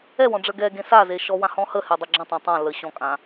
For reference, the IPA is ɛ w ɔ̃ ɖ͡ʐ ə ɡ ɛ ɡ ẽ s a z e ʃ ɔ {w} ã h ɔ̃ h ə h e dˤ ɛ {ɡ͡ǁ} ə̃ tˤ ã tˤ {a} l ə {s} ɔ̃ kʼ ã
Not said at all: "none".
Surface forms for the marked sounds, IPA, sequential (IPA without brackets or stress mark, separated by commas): w, ɡ͡ǁ, ã, ɕ